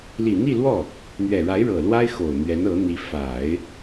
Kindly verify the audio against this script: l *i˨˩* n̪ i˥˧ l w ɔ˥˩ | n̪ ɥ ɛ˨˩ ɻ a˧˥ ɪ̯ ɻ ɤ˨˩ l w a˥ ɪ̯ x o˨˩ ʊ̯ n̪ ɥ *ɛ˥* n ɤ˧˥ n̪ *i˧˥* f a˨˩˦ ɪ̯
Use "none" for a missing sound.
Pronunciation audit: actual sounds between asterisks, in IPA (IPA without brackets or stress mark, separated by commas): i˨˩, ɛ˧˥, i˧˥